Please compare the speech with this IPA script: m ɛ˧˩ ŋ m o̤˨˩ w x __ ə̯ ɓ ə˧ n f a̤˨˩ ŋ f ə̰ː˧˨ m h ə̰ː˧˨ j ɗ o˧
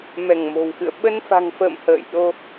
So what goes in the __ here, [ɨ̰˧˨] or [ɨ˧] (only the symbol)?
ɨ̰˧˨